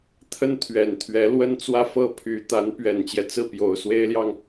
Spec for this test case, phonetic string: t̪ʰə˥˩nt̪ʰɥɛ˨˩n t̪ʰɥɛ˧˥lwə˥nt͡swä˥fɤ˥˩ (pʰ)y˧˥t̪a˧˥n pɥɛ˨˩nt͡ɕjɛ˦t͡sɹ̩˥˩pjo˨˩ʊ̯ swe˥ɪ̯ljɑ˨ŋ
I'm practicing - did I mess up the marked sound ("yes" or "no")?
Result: no